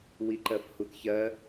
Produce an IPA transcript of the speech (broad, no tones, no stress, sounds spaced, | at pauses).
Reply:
w i ǃ ɜ f h u t ç ɜ